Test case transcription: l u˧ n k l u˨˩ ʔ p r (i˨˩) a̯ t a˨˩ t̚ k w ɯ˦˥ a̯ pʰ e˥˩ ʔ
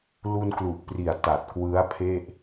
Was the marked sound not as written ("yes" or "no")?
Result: no